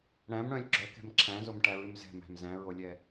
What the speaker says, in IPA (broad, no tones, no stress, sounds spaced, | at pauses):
ɽ æ̃ m ɽ œ̃ lʲ ɡ͡ǁ œ k ɛ̤ m ǁʰ æ̃ z o m ʈ æ ɹ ʉ m z ɛ̤ m æ̤ m z æ̃ ɹ o lʲ ɛ